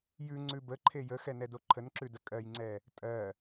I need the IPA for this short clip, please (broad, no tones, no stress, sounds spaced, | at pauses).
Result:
j ʉ ŋ͡ǀ ʉ b ə ǃʰ e j ə x ɛ n ɛ d o ǃʰ ə n ǁ ʉ d ə kʼ ɜ j ŋ͡ǀ ɛ | tʼ ɜ